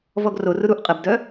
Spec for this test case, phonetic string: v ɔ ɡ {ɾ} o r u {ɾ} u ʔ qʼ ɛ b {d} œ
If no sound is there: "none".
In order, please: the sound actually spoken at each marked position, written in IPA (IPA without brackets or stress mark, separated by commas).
r, ɾ, d